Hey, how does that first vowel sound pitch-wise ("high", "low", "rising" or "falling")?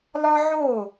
high